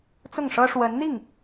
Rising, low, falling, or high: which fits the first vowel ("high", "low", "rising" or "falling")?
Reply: falling